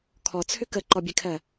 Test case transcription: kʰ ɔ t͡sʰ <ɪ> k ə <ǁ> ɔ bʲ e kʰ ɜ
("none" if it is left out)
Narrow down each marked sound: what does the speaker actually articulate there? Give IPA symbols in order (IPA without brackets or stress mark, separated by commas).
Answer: ʏ, ǃ